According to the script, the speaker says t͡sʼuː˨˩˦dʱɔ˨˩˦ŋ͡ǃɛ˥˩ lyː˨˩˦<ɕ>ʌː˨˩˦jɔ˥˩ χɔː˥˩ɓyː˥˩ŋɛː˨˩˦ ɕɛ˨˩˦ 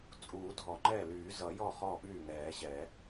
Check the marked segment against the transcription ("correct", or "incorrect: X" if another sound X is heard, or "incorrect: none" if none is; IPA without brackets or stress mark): incorrect: z